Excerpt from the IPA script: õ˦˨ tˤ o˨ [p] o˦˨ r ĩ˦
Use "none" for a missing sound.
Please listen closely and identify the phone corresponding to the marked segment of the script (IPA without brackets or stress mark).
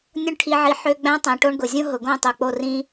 k͡p